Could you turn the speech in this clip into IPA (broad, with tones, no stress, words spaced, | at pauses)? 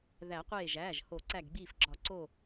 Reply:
ðæ˨˩˦qʷeː˧˩ʒæː˩˧˩ʒho˨˩˦ ǀæ˧˩ɡɡ͡biː˧˩fɡ͡ǁɒ˨˩˦ ǀo˧˩